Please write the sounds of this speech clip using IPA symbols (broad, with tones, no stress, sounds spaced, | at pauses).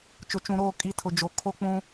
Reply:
t͡ʃ ʊ˨ t͡ʃ ũ˨ ɾ oː˦˨ kʼ i˨˦ tʰ ʊ˨ d͡ʒ o˨ kʰ o˦ k͡p ũ˦